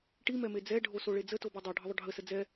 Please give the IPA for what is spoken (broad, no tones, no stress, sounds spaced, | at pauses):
ʈ i m ɛ m e d͡z ɛ ɖʱ o s o ɭ e d͡z ə t o b ɛ dˤ o ɖʱ ə ðˤ ʊ ɖʱ ə s ə d͡z ɛ